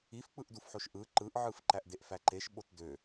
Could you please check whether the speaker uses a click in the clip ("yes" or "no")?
yes